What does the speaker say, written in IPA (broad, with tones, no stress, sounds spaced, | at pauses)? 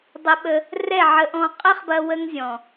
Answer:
dˤ ə˧ ɓ ə˧ | r ɛ˦˨ ʕ ə˧ ʔ ɔ̃˧ qʼ ə˦ χ b ɐ˧ w ə˦ ŋ zʲ ɔ̃˨